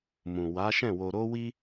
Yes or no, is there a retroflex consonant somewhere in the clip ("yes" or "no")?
no